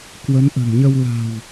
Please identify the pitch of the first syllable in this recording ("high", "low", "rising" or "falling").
rising